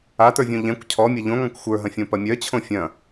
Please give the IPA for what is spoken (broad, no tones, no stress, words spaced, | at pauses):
atə˞vʲõ ʎɛ̃kʷ cʰɔmʲɐ ʎõŋɔ̃kʷ xʷə˞ɦɐ̃fʲõ pɐmʲœt͡ɕʰõ fʲɐ̃